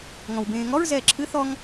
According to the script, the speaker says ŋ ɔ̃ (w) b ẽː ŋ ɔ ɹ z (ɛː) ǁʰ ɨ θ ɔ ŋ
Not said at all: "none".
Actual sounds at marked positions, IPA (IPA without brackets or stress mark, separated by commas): w, ɛː